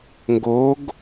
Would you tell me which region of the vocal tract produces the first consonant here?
velum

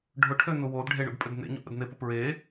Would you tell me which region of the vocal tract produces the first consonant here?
retroflex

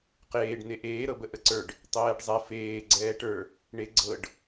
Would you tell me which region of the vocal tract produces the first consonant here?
uvula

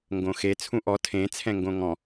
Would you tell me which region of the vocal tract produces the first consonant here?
velum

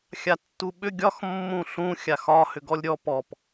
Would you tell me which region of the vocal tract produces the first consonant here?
velum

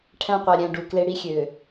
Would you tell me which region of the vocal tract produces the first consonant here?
retroflex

